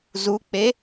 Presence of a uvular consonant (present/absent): absent